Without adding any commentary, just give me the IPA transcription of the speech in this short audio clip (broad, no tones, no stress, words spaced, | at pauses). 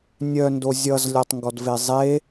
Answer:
nʲœndo zʲʌzlʲɔtˤŋɡɔdve zˤe